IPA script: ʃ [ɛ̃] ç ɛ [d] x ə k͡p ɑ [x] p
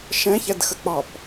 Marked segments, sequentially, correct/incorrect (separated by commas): correct, correct, incorrect